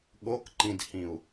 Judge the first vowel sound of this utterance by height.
mid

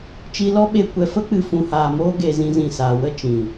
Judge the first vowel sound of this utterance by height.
high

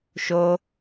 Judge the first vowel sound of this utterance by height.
mid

